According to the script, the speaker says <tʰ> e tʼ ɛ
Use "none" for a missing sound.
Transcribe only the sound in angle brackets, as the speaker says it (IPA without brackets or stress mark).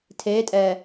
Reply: tʰ